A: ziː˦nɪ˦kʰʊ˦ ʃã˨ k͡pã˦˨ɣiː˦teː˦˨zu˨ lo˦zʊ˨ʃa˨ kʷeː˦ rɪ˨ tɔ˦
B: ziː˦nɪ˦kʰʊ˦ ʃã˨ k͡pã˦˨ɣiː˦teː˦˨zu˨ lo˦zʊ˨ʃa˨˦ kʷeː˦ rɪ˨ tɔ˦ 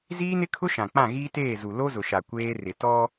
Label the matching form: A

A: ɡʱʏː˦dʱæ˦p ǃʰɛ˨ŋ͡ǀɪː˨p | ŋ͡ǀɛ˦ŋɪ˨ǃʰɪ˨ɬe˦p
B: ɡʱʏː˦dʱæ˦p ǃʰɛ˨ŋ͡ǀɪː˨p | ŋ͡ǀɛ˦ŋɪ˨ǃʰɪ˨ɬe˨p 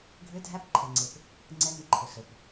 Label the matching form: B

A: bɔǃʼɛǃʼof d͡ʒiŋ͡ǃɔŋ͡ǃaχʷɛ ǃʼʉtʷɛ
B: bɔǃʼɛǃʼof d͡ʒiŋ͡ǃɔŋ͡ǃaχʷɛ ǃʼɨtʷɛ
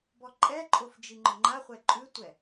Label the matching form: A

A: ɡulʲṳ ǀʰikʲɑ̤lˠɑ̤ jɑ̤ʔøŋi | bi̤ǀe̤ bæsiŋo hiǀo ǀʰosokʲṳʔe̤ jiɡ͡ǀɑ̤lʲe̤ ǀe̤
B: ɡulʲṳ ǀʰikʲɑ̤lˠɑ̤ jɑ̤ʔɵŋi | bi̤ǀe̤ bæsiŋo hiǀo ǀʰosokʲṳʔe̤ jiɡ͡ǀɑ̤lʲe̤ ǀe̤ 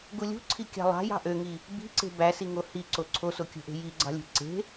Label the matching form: A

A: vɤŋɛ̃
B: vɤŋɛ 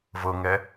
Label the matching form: B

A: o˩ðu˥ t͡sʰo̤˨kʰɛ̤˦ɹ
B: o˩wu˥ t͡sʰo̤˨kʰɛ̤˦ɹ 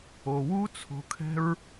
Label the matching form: B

